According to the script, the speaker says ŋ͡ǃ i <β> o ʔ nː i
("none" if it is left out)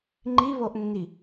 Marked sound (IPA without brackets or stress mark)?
β